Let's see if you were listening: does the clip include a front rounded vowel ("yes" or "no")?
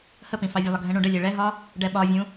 no